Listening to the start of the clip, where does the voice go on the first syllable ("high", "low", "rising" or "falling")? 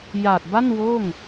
low